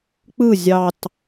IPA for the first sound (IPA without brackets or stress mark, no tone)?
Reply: k͡p